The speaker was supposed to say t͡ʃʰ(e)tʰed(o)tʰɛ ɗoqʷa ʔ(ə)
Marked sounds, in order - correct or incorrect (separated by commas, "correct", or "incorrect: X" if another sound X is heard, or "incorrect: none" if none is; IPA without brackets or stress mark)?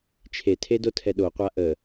correct, correct, correct